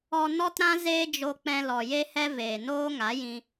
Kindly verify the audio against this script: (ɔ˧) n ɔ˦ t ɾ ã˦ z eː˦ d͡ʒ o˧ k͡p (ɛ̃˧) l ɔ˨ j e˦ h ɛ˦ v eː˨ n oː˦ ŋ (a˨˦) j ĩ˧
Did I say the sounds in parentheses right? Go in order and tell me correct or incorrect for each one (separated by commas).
correct, correct, correct